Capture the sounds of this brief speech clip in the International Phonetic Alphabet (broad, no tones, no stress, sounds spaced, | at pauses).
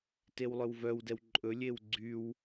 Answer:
t e w lˠ œ w v œ w d ɛ w ǃʼ ɵ lʲ e w ɡ͡ǀ y w